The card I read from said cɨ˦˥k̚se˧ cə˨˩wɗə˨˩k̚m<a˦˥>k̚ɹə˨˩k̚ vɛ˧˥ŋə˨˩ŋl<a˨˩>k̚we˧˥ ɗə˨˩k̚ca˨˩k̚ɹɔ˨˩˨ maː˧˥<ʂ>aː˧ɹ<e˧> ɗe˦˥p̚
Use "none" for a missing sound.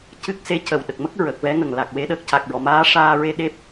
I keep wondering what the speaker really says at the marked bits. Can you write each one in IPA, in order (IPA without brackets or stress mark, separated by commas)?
ə˦˥, a˨˩, ʂ, e˧